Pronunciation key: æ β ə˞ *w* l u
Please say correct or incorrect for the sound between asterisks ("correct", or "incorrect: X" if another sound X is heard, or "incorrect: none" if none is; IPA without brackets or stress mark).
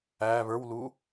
correct